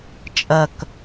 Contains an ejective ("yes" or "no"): yes